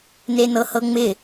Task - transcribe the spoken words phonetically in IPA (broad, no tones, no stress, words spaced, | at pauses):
nenɤhɤŋ͡mɪ